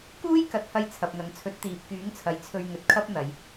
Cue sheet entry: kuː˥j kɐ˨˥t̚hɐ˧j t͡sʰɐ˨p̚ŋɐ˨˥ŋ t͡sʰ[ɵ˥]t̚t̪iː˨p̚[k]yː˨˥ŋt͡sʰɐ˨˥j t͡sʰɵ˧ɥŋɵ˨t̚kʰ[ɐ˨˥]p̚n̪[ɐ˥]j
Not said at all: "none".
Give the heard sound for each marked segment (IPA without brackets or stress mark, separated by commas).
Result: ɵ˨˥, k, ɐ˥, ɐ˨˧